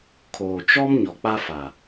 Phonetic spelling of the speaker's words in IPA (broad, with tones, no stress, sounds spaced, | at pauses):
kʰ oː˨ t͡ʃ ɔ˦ m ɲ ɔ˨ k͡p a˦ f a˨